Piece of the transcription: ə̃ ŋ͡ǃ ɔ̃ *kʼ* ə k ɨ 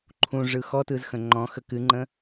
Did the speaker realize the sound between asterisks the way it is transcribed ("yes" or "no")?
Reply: no